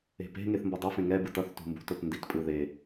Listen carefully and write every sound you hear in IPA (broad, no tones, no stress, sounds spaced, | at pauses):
e̤ p e̤ ŋ e θ m b ʌ dˤ ʌ f ẽ ŋ ɛ b ɯ t ʌ θ t ṳ m b ṳ t o t n d i t pʼ ɯ ð e